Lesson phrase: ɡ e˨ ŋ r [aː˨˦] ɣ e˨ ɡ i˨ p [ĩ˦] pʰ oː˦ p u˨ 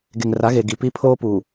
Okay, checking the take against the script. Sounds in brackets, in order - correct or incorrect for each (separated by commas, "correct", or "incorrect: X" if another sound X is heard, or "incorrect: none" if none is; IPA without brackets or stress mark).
incorrect: a˨˦, incorrect: i˦